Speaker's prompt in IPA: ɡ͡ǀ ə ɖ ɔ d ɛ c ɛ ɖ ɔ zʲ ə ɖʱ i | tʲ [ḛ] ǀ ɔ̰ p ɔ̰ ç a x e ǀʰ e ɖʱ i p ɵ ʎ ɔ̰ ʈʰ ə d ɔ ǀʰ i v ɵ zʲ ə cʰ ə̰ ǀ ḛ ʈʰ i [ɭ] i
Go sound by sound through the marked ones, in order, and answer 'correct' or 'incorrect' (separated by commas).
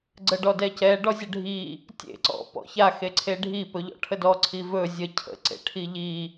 correct, incorrect